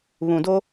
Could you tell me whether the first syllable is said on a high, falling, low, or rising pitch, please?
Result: low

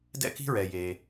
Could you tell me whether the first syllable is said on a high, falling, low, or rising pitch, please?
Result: high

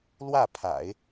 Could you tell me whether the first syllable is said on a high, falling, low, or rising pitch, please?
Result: falling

